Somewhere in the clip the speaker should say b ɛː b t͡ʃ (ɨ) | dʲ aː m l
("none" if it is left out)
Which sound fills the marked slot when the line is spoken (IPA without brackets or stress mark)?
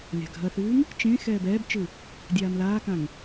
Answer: ɨ